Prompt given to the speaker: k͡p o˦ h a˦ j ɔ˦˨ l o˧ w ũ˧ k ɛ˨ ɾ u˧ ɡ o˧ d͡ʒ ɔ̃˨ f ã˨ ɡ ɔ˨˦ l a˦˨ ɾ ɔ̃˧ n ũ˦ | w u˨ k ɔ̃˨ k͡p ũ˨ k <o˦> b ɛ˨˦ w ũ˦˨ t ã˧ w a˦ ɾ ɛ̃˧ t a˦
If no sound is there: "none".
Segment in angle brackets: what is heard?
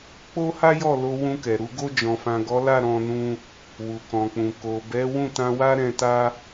o˨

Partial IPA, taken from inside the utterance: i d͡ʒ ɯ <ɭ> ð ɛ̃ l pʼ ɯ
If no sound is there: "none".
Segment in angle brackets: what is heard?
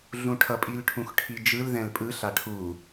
l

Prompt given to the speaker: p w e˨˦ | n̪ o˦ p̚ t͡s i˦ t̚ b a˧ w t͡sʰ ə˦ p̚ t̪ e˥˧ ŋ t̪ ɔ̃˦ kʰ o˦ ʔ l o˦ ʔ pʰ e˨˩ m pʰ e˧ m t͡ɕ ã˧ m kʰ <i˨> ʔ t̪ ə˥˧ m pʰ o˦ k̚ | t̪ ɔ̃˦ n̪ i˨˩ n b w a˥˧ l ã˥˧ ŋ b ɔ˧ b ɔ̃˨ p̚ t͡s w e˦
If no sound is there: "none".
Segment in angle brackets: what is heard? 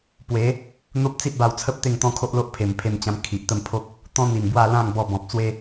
i˨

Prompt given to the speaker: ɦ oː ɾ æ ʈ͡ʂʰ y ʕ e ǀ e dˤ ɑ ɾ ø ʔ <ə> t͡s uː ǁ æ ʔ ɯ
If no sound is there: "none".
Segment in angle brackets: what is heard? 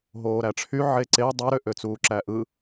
ø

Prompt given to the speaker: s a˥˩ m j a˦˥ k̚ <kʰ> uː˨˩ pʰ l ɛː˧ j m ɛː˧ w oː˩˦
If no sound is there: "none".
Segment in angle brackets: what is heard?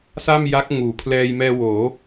ŋ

